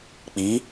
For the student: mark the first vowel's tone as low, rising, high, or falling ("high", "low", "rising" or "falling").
rising